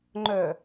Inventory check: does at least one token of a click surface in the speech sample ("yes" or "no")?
yes